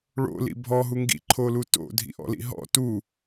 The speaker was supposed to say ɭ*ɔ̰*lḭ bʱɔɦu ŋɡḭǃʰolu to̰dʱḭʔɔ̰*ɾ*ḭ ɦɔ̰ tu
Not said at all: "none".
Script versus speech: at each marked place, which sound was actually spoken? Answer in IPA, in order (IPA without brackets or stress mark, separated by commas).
o̰, l